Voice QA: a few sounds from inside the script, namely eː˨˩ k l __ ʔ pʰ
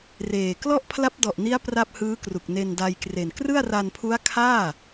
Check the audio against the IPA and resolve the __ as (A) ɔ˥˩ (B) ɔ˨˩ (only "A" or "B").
A